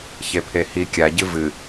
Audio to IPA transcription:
ç e pʰ e h i kʲ a ɟ ɨ v ɨ

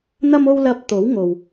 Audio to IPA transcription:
n̪ ɐ˥ m o˥ w l ɐ˧ p̚ t̪ o˨˥ w ŋ o˨ w

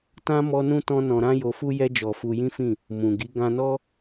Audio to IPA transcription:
t ã˦ m ɔ˦ n ũ˦ t ɔ̃˦ n ɔ̃˧ ɾ ã˦ j o˧ f u˦ j ɛ˦ d͡ʒ ɔ˧ f u˧ j ĩ˦ f ĩ˦˨ | m ũ˨ ɡ i˨˦ ɡ ã˧ n ɔ˦

